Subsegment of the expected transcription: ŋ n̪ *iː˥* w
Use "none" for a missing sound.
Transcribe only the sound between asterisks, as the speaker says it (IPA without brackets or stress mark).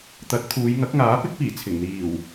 iː˨˩